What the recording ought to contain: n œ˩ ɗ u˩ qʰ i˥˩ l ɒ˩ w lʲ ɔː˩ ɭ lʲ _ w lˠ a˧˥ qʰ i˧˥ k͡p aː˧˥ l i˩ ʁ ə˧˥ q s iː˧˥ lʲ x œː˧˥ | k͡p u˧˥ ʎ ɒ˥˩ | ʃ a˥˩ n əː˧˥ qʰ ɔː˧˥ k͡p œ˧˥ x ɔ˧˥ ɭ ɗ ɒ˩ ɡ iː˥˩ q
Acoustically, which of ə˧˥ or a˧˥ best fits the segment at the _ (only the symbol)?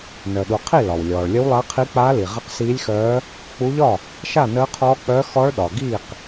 ə˧˥